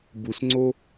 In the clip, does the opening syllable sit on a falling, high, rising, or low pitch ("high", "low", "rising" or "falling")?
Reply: low